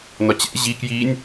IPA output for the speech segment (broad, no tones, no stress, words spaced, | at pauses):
nɒt͡ɕɛ̰ ʑi kjinʲ